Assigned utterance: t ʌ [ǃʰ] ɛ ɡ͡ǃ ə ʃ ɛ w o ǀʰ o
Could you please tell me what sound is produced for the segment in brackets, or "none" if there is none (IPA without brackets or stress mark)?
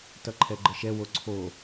ǃʰ